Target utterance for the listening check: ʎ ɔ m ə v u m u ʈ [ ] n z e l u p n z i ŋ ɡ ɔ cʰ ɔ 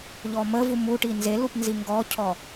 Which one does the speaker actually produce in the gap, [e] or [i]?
i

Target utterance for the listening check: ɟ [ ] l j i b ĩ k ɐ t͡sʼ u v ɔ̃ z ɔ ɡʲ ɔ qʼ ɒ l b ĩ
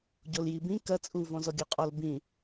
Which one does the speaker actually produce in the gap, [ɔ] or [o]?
o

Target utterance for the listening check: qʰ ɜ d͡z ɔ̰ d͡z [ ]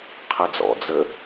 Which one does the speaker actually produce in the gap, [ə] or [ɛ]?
ə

